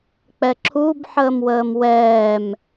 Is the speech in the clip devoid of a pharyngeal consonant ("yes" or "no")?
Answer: no